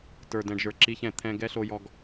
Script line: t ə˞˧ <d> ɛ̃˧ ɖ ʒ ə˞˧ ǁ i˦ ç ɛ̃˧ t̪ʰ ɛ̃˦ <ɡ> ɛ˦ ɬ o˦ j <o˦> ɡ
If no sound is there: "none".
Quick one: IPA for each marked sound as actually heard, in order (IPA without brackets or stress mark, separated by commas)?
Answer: d, ɡ, ɔ˦